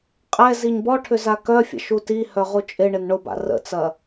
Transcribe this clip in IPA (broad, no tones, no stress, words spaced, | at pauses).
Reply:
qʼɛ ziɲbɔʈʰʏ zakœfʲə̰ ʃutihœ ʁut͡ʃʼɪɳɪn ɳʊba̰ rə̰t͡sɐ